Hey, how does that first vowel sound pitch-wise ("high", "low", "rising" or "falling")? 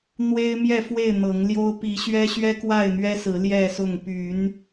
high